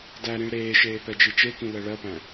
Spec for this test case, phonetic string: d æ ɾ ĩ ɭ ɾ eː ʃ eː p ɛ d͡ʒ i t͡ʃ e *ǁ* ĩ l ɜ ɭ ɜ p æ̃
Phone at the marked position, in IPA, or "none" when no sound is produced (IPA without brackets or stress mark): k